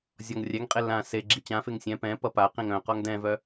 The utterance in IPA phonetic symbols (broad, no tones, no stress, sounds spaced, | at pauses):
zʲ ɔ ŋ rʲ ɛ ŋ qʼ e l ã s e ɡ͡ǁ i t͡ɕ ã f e ŋ sʲ ɛ̃ p ɛ̃ p ʌ p a q ĩ ŋ œ̃ q ɔ ŋ d ɛ̃ v œ